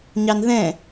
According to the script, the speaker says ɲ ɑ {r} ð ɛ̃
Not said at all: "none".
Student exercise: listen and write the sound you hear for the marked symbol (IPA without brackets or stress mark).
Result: n